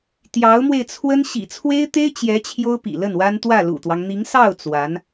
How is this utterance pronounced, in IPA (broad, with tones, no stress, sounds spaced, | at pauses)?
t̪ j ɑ˧˥ ʊ̯ m w e˧ ɪ̯ t͡sʰ w ə˥ n ɕ ḭ˨˩ t͡sʰ w e˥ ɪ̯ t̪ e˥ ɪ̯ t͡ɕ j ɛ˧˥ t͡ɕʰ j o˥ ʊ̯ p ḭ˨˩ l ə˥˩ n w a˥ n t̪ w ä˥˩ l ṵ˨˩ t̪ w ɑ˦ ŋ n̪ i˧˥ ŋ s ɑ˥˩ ʊ̯ t͡s w a˧˥ n